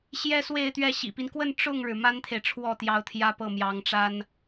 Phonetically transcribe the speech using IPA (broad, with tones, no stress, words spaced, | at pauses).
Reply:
ɕjɛ˥swe˥˧ɪ̯t̪ɥɛ˥˩ ɕḭ˨˩pi˦nkwə˥˧n ʈ͡ʂʊ˥˩ŋɻɻ̩˩ ma˥nt̪ʰe˨ɪ̯ ʈ͡ʂʰwɔ˥˩t̪jɑ˧˥ʊ̯ t̪ʰjä˥pɤ˥˩mjɑ˧˥ŋʈ͡ʂa˥n